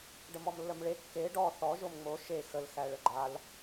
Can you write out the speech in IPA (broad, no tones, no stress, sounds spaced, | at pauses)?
ɖ ə m ɔ m lː ə m ɭ e kː e ɖ ɔ θ ɔ ʒ o m ŋ͡m o ʃ e x ə l x æ ɭ ə ɡ͡ǃ a l